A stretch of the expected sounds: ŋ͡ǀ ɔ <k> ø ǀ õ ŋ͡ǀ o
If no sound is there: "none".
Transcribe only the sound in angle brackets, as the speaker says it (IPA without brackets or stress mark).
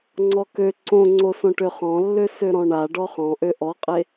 k